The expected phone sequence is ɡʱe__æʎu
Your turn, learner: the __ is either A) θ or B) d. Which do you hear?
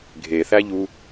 A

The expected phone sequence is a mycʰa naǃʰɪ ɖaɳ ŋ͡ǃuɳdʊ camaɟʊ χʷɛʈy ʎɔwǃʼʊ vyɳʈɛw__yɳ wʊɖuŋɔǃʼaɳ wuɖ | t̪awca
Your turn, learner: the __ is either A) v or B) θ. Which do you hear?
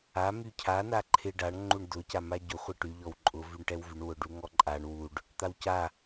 A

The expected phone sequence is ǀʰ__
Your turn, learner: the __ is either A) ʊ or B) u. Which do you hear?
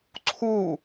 B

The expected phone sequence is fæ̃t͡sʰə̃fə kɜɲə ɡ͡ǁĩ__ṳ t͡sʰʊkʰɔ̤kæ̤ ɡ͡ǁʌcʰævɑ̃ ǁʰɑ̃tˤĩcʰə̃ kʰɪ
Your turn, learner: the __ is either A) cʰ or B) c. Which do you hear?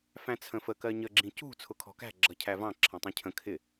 B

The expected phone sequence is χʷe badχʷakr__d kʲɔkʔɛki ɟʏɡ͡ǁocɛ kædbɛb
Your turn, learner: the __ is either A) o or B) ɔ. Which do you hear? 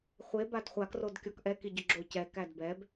A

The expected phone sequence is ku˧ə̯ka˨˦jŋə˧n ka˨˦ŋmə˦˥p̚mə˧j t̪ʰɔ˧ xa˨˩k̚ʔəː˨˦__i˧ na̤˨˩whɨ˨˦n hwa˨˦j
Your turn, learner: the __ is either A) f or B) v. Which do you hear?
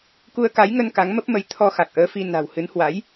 A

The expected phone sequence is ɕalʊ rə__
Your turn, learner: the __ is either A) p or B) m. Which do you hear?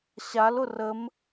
B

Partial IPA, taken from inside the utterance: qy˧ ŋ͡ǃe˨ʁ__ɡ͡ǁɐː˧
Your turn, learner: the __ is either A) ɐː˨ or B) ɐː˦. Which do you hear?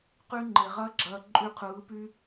B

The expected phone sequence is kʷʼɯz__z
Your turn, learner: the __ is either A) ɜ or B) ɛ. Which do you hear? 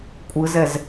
B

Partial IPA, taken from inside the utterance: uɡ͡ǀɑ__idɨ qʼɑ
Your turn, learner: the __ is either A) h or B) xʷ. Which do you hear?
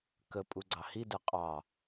A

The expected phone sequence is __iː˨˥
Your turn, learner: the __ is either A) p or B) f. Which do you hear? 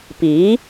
A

